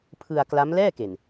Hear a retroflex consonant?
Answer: no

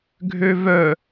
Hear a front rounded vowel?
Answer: yes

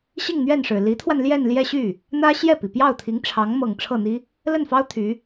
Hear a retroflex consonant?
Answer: yes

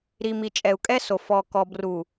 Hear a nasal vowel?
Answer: no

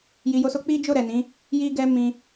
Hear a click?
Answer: no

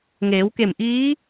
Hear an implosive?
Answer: no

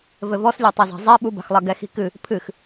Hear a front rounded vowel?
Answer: no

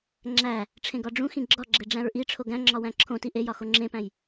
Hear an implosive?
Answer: no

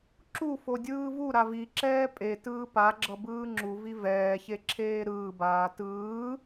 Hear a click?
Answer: yes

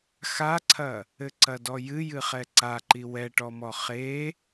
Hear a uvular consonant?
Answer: yes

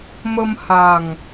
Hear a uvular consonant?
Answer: no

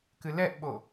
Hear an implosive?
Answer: yes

